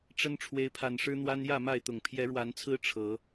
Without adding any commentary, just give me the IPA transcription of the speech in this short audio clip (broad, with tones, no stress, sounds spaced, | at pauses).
ʈ͡ʂ ə˦ n ʈ͡ʂʰ w e˨˦ ɪ̯ pʰ a˨˩ n ʂ ɻ̩˦ n̪ w a˦ n j ä˥˨ m a˥˨ ɪ̯ t̪ ʊ˨˩ ŋ pʰ j ɛ˨˦ ɻ w a˨˦ n t͡sʰ ɹ̩˦ ʈ͡ʂʰ ɤ˨˦